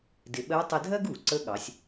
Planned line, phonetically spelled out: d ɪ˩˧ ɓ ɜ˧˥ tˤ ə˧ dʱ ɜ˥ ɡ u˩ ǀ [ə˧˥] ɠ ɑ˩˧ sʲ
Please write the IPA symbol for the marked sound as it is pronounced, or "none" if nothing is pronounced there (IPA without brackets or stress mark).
ə˧˥